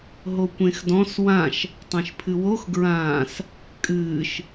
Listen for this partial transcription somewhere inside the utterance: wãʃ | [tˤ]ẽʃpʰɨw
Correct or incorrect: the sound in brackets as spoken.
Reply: correct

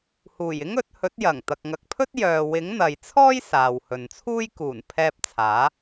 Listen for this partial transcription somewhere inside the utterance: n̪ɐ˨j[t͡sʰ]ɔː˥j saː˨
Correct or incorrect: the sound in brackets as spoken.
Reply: correct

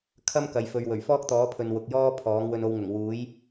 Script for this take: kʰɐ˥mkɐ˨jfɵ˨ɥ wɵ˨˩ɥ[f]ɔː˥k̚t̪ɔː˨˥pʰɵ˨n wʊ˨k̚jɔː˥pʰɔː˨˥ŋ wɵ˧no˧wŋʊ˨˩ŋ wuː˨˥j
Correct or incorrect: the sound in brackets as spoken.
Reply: correct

